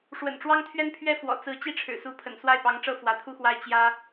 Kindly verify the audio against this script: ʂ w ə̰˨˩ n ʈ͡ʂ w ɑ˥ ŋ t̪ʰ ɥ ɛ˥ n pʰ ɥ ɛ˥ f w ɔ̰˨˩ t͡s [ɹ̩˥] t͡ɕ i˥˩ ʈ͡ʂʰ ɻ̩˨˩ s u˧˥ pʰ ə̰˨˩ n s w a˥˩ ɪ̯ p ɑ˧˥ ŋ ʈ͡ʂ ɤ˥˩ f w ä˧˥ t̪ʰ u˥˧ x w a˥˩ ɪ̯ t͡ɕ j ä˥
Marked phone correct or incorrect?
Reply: incorrect